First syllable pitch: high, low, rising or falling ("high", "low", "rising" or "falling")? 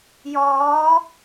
rising